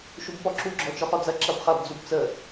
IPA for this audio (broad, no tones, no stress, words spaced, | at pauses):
ʃubpɔǁu ɡ͡ǁɔt͡ʃɔχɔd͡zɐ ǁɐbχɐb d͡zubt͡sə